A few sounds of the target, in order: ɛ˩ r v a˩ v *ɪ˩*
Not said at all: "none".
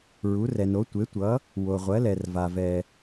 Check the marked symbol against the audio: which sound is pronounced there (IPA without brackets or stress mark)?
ɛ˩